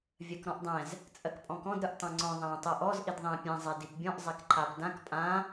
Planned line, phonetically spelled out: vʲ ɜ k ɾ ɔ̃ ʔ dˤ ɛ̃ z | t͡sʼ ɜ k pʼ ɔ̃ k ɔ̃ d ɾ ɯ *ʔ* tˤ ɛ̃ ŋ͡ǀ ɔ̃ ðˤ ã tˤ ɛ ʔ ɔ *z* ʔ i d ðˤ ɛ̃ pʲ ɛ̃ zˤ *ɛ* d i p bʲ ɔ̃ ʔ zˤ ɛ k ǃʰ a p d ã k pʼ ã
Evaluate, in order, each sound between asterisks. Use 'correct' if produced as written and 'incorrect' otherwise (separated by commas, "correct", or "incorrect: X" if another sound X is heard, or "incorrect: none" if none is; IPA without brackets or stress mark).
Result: correct, correct, correct